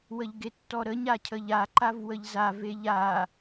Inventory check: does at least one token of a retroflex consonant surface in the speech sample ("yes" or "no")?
no